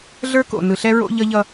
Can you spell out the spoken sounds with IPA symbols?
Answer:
ɮə˞˦ko̰˨ nɯ˨ɬɛ˦ ɹo̰˦ʎʌ˦ʎʌ˦

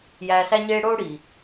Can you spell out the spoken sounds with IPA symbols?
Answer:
jæː˧sæ˥ɲeː˥ ɽoː˥ɽiː˩

